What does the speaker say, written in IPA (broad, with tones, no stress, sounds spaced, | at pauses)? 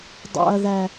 dˤ ɑ̰˨ ɐ̯ ð æ˨